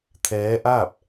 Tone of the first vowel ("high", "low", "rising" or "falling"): rising